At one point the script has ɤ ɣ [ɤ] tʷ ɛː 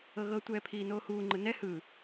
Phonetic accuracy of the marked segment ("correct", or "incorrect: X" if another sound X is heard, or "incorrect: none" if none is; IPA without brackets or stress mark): correct